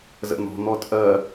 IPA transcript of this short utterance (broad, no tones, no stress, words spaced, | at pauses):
zə̰n̪ɔ̤ n̪ɔtʼɜ